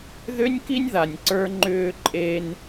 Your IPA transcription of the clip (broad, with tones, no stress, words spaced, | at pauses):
ðʏ˦nʲki˦nʲ ða˧nʲǀə˞˦ŋ͡ǃʏː˦ ǃʼeː˧n